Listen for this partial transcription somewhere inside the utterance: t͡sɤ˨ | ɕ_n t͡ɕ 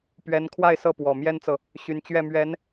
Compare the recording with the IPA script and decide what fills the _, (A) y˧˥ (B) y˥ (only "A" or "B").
A